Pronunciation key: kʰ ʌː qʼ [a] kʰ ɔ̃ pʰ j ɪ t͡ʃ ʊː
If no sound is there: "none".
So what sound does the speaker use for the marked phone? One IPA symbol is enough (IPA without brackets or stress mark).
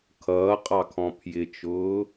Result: ɑ